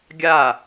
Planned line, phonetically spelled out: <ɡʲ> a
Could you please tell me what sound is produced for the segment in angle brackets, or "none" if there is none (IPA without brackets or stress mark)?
ɡʲ